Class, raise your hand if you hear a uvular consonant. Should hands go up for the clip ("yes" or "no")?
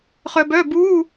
yes